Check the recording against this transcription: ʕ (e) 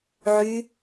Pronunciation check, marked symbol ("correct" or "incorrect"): incorrect